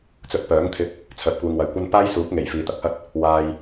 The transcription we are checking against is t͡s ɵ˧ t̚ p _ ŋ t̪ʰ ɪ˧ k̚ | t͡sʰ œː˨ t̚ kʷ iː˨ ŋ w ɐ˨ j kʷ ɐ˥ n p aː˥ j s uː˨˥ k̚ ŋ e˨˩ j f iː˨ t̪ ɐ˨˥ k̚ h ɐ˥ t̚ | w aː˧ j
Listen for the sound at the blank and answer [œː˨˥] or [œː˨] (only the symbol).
œː˨˥